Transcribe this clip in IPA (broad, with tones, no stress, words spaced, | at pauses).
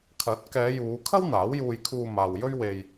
kʰɐ˨˥t̚kɛː˨˧juː˨˧ kʰɐ˥w n̪aː˨˥wjuː˧jkʰuː˧maː˨w jɵ˥ɥwe˧j